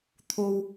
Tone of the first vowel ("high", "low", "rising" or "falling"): high